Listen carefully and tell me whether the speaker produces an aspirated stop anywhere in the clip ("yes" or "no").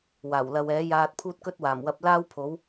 yes